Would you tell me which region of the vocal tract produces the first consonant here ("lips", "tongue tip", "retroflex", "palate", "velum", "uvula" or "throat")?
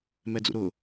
lips